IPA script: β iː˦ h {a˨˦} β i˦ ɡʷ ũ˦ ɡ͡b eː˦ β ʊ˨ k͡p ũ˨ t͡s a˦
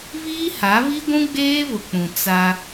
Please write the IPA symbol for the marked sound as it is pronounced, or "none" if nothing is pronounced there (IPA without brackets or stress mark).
a˨˦